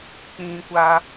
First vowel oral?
no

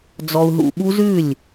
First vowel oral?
yes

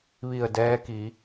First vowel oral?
yes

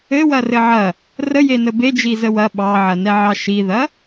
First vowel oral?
yes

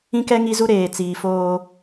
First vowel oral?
no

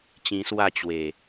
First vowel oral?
no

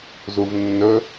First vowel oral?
yes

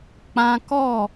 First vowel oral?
no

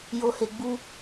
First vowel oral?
yes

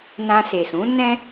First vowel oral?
no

